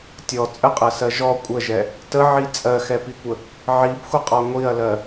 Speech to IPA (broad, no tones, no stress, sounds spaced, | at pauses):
tʲ ɔ t͡sʼ ə qʼ ɜ s ɜ ʒ ɔ kʷʼ ə ʒ ɛ | t ə ʕ i t͡sʼ ɜ x ɛ p i kʷ ə | ʕ i b xʷ ə qʼ ɔ ŋʷ i ɐ̯ l ɜ